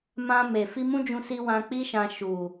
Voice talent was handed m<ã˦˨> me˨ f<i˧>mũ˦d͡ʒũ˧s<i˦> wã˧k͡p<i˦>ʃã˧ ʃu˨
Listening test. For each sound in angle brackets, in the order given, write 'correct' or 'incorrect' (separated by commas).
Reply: incorrect, correct, incorrect, correct